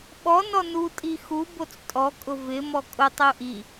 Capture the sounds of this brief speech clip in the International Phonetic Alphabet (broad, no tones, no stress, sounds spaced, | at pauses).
ɓ ɔ n ɔ n u tʼ i x u b o t͡s tʼ ɔ kʼ ʊ v ɪ m ɔ kʼ ʊ tˤ ɪ u̯ ʔ i